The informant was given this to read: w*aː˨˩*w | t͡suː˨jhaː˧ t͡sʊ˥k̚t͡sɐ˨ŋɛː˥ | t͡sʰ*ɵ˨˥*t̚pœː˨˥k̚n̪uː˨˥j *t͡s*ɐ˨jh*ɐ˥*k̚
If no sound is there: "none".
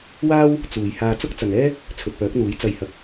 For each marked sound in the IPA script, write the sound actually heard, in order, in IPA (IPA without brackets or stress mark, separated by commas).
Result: aː˥, ɵ˨, t͡s, ɐ˨